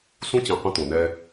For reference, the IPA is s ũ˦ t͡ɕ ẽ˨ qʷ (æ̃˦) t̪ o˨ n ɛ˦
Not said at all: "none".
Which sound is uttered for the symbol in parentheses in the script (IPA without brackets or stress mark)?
ə̃˦